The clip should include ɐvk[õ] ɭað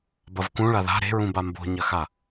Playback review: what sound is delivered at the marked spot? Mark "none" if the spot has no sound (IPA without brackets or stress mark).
ũ